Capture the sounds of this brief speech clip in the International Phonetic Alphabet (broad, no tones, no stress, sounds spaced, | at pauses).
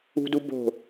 ṳ d u b o̤